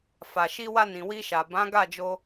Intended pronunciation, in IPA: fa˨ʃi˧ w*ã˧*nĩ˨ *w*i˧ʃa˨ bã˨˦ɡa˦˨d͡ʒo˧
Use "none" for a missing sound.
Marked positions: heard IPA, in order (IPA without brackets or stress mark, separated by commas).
a˧, w